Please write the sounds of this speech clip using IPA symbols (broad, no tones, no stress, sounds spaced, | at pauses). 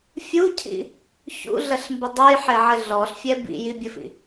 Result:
fʲ u cʰ ḭ | ç ṵ ɮ ɐ ɬ m b ɘ dˤ o j ħ e ʕ ɘ ɮ ɔ ɬ fʲ ɛ b ḭ j i bʲ ɘ f ḭ